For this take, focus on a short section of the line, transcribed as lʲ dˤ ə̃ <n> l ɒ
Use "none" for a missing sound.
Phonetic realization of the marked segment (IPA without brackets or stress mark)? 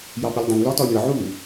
n